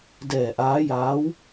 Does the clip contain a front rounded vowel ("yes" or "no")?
no